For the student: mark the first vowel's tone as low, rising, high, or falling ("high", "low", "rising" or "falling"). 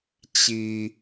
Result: low